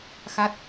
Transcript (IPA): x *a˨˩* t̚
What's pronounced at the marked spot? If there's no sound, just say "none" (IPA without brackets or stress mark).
a˦˥